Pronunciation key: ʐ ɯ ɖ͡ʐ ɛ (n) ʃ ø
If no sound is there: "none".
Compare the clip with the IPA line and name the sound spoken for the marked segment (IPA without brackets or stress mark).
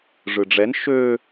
n